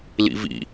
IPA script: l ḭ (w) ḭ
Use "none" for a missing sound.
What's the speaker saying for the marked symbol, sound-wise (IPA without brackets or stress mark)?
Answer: v